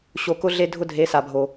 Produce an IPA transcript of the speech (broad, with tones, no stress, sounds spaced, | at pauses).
ɕ o˧ k ʊ˦ ɮ e˦ dʱ ʊ˦ dʱ e˨˦ s a˨ bʱ o˨